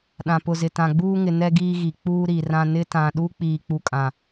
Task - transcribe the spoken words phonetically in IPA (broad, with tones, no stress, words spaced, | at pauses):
ɗã˨pʊ˨zɪ˨ tã˨ɡ͡buː˦ŋɪ˨ nɛ˦ɡiː˦ɣi˨ k͡puː˦ɾi˨rã˦ nɪ˦tã˨ɗu˦ k͡piː˨k͡pu˨kʼã˨